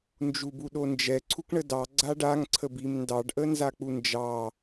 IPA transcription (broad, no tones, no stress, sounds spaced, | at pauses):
n d͡ʒ u b u ɗ o n d͡ʒ ɛ ǀʰ u k ɳ ə d ɑ ɡ͡ǀ a ɖ a ŋ ǀʰ ə b i m n d ɑ ɖ ʔ ə n z a k͡p u n d͡ʒ ɑ